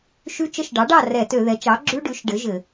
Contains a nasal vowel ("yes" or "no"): no